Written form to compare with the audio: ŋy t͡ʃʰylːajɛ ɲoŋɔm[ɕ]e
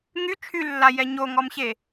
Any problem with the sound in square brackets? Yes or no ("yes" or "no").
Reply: no